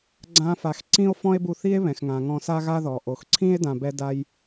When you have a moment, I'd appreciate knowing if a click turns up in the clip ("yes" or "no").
yes